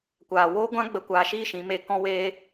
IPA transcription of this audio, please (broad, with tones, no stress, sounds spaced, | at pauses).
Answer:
kʷ aː˨ w oː˦ ɡʷ ã˦ ɡ͡b ə˧ kʷ aː˧ ʃ iː˦ ʃ ĩ˨˦ m e˧ k ɔ̃˦ w eː˦